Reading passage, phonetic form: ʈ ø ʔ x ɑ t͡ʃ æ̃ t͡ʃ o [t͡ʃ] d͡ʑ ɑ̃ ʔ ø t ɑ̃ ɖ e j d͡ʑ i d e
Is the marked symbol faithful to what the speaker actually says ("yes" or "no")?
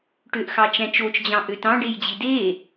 yes